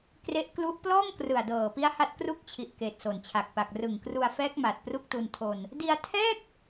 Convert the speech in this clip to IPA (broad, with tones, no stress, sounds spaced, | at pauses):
k r e˦˥ ʔ k l u˦˥ ʔ p l ɔː˥˩ ŋ k r ɯ˨˩ a̯ d ɤː˨˩ p i˦˥ a̯ h a˦˥ t̚ k r u˥˩ k̚ t͡ɕʰ i˨˩ ʔ k eː˨˩ t̚ s o˨˩ n t͡ɕʰ a˨˩ k̚ p a˨˩ k̚ r ɯ˨˩ ŋ k r u˧ a̯ f ɛː˦˥ k̚ m a˨˩ t̚ p r u˥˩ k̚ t u˧ n tʰ oː˧ n | d i˧ a̯ tʰ ɛː˥˩ k̚